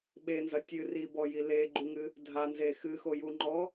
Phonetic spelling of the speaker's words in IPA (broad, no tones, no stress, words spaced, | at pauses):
ɓenzɐ tʲɨ ribɔji leɡ͡ǃuŋɨ | dʱanze xɨxojuŋ͡ǃɔ